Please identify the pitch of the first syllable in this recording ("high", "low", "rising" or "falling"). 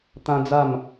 high